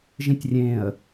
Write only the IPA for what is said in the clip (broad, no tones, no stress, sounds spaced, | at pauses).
ʒ ĩ tʲ rʲ ẽ ə̯